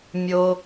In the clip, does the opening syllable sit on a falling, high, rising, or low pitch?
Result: low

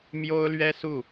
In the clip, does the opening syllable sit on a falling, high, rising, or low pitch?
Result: high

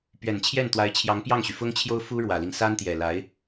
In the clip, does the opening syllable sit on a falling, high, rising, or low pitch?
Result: low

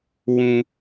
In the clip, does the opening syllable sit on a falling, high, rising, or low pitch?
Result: high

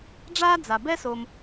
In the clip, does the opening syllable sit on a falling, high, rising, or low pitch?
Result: high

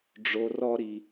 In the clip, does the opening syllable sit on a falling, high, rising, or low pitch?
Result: low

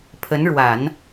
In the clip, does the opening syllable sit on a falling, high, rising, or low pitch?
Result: rising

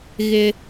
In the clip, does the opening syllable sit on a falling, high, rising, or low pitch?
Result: high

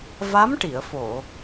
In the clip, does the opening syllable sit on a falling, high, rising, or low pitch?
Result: rising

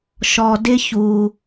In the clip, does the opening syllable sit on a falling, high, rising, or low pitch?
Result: low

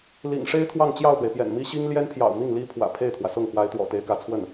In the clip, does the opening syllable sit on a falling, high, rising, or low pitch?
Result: low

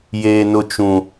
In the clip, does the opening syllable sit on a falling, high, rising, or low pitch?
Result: high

